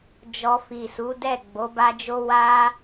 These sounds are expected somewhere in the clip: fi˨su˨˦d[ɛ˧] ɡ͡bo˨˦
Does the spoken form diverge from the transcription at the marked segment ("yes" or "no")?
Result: yes